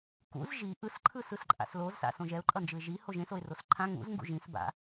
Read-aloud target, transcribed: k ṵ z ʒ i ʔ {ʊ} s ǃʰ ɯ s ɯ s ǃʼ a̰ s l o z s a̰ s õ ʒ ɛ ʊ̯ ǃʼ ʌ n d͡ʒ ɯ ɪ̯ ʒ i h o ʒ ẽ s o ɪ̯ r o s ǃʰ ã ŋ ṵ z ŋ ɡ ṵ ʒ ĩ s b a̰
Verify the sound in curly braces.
incorrect: ɯ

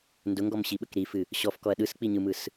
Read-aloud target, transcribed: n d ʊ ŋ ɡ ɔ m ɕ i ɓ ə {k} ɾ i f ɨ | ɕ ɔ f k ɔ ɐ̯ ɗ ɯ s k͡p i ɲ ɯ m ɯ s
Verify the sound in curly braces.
correct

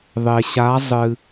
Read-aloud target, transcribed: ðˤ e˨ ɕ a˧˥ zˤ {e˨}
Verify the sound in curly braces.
incorrect: ɨ˨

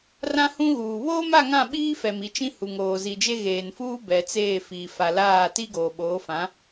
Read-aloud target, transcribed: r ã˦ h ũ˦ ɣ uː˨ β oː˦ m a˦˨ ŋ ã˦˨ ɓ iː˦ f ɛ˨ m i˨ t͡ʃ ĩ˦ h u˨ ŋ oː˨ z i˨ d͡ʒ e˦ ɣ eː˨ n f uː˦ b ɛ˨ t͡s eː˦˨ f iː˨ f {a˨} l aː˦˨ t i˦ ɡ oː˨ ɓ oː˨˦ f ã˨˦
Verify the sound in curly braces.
correct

